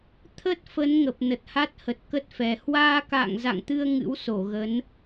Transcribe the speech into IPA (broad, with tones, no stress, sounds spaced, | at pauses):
t̪ʰ ə˦˥ t̚ f ə˨˦ n ŋ ə˨˩ p̚ n ə˨˩ t̚ h a˦˥ t̚ h ə˨˩ t̚ k ə˦˥ t̚ f ɛ˨˩ h w aː˧ k a̰ː˧˨ ŋ z a̰˧˨ ŋ t̪ ɨ˧ ə̯ ŋ ɨ̰˧˥ w s o˧˩ ɣ ə˨˦ n